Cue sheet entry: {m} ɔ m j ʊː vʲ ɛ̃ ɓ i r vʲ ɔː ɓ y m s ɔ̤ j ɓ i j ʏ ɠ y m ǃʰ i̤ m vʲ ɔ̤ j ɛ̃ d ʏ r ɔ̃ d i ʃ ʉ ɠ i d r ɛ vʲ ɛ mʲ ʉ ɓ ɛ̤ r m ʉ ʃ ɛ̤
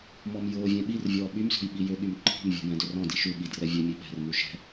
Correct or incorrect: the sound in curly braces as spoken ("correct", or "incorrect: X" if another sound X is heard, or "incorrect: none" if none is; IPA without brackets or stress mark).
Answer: correct